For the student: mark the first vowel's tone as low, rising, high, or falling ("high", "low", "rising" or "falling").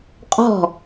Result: falling